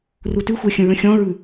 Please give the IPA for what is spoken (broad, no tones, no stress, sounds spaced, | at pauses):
r u t ʉ xʷ ɜ xʲ ə̃ ɹ ə̃ xʲ ɔ̃ ɹ ʉ